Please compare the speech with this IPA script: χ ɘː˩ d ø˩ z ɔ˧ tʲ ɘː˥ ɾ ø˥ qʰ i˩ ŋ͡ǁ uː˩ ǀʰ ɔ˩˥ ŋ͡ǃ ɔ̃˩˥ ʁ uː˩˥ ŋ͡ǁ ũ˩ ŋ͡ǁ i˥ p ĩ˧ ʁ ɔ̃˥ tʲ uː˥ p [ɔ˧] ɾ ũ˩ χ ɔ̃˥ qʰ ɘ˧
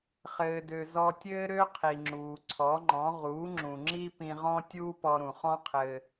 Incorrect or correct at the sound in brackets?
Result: correct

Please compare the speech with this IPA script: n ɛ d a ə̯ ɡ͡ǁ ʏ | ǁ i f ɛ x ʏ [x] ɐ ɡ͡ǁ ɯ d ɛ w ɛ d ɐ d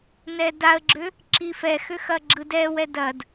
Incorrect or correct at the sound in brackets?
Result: correct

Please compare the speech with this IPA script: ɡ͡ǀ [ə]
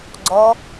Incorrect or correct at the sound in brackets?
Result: incorrect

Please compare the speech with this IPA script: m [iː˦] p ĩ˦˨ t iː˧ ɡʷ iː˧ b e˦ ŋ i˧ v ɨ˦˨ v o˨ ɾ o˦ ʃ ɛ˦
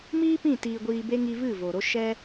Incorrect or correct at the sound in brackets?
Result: correct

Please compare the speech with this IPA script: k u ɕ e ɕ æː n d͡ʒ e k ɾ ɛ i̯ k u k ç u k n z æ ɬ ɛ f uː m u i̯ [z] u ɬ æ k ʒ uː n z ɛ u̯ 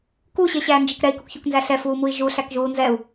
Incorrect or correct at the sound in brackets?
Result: incorrect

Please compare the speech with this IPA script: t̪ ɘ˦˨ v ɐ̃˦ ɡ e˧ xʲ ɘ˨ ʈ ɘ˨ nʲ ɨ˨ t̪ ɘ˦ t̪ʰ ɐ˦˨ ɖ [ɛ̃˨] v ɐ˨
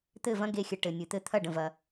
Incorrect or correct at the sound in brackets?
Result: incorrect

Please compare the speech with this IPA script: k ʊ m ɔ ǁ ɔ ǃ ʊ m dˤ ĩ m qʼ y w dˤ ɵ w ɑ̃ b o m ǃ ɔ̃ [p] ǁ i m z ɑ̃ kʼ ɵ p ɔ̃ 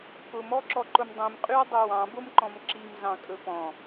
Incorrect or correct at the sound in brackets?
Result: incorrect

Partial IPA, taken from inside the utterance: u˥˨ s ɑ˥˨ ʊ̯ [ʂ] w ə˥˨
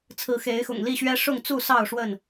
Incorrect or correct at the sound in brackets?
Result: correct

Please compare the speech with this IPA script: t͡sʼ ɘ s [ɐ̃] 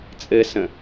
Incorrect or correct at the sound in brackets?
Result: incorrect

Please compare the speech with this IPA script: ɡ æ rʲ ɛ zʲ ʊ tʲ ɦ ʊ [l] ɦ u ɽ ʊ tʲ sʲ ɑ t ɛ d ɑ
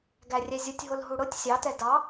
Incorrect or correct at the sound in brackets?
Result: correct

